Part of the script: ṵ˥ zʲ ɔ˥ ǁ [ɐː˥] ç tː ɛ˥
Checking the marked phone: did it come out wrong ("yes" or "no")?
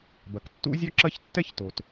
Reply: yes